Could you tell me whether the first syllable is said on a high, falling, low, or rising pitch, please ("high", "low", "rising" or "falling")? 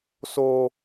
low